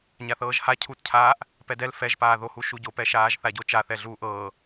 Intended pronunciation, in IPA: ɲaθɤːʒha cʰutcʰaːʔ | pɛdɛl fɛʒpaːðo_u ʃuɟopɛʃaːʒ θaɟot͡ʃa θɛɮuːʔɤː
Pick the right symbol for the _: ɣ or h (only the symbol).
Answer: h